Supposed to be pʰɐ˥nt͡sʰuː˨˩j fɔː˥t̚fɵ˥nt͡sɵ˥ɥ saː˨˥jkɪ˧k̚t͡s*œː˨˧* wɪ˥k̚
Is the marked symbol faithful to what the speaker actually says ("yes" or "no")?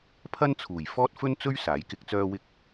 no